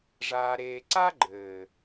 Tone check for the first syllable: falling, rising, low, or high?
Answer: low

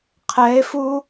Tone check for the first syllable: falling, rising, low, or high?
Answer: rising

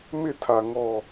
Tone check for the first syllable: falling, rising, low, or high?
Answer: falling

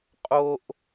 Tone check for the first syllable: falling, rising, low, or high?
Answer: high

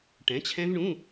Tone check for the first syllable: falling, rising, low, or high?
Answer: rising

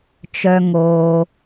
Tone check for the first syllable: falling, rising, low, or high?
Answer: low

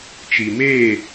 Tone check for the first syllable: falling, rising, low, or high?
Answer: low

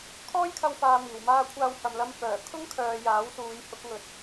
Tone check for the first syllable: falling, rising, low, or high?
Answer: high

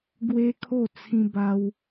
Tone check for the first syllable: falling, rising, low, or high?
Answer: high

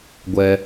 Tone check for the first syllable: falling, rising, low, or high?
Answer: low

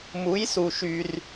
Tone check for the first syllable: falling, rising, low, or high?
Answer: rising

